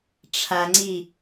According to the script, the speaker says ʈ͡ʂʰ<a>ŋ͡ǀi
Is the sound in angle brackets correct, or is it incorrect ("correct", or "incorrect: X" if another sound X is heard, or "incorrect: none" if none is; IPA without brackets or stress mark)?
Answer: correct